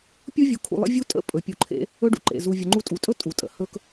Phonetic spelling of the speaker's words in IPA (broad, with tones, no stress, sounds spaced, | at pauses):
pʲ u˦ vʲ u˧ kʰ ṵ˧ lˠ ə̰˦ vʲ u˦ tʼ ə̰˦˨ pʼ ɵ˨ pʲ u˧ ǃʰ ḛ˦ | ɵ˦ ɖ ṵ˧ ǃ ḛ˨ z u˧ vʲ ə˧ ŋ͡ǃ u˦ tʼ u˨ tʼ ɵ˦ tʼ u˨ tʼ ə̰˧ h ɵ˦ k